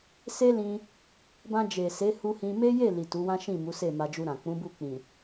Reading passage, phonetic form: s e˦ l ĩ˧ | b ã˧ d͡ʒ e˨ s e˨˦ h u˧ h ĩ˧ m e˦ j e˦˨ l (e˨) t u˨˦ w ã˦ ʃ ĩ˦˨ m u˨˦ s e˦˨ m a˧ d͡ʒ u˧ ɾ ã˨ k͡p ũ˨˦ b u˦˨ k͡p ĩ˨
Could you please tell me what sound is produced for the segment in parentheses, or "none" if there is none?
i˨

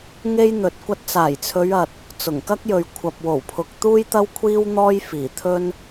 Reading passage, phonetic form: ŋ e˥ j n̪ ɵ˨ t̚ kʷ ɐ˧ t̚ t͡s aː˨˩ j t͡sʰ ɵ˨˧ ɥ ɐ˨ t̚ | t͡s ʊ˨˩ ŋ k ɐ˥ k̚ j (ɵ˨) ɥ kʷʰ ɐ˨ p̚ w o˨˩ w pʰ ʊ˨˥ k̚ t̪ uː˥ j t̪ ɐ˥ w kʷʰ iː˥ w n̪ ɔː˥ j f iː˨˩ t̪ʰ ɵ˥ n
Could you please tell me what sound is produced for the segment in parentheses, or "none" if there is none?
ɵ˨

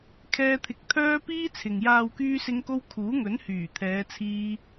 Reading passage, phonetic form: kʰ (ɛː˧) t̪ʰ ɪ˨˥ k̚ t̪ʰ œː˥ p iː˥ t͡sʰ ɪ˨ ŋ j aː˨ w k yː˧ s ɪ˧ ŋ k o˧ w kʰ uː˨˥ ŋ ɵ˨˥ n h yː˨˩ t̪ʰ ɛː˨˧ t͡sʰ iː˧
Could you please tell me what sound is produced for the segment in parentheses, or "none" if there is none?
ɛː˧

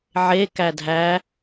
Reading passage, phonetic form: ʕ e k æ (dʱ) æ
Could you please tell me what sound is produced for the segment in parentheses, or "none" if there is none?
dʱ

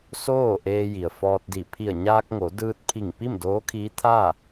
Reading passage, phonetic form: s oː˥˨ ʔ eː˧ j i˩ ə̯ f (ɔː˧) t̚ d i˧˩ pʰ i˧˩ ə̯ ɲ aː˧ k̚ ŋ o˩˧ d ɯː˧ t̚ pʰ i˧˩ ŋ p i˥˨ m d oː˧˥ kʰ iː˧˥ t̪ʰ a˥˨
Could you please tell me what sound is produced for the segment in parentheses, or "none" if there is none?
ɔː˧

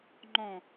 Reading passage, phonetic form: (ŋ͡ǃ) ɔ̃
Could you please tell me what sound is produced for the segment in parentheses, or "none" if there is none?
ŋ͡ǃ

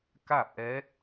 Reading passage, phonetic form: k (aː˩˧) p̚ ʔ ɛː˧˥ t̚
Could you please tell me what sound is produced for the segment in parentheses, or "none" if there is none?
aː˥˨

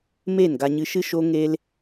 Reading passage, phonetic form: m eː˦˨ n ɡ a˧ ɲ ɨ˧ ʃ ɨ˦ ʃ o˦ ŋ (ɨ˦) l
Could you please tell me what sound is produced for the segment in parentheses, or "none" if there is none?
e˦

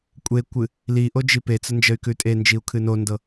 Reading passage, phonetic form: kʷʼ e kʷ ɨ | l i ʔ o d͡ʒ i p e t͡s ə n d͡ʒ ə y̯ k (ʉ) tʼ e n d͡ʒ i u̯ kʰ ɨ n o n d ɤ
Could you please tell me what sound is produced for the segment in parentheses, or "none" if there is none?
ʉ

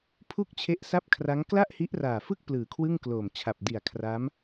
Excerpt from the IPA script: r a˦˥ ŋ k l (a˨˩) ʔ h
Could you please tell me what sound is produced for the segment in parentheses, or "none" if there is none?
a˥˩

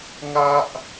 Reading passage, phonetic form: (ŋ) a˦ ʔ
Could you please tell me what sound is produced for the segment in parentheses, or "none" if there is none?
ŋ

